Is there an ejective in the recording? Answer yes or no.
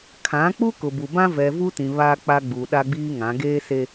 no